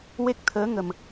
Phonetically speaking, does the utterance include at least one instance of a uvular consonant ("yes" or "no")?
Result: no